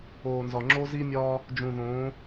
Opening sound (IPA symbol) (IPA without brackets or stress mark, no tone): oː